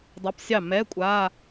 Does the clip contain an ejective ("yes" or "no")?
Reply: yes